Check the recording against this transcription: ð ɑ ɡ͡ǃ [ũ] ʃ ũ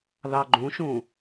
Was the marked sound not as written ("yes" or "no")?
no